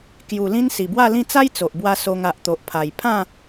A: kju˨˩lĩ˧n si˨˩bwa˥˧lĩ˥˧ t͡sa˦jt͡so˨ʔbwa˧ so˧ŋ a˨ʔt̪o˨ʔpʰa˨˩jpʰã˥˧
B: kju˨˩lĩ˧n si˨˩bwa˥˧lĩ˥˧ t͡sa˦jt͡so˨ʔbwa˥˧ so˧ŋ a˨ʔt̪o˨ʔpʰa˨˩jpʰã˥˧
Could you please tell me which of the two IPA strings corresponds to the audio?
A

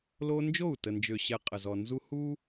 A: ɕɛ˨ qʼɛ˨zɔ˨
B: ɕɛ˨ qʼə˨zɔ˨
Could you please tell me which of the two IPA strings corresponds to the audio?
B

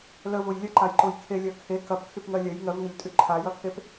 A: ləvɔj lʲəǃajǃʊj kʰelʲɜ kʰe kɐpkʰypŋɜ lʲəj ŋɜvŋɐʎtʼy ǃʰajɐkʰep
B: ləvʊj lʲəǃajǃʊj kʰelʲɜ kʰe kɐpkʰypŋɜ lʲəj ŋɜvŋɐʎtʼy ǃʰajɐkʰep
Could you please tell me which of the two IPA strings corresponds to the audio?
B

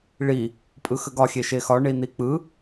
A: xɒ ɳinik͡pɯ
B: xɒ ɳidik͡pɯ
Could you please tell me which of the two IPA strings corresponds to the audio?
A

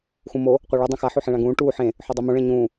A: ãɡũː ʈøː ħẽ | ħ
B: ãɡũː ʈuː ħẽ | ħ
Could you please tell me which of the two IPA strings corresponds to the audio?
B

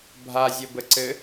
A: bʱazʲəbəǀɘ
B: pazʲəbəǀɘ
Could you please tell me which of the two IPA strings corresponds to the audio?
A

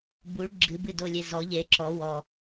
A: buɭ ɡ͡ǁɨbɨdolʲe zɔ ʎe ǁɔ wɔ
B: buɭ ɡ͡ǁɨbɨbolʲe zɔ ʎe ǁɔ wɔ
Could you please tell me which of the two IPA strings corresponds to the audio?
A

